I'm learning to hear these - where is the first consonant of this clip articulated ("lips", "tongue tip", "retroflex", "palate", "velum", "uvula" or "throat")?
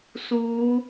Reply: tongue tip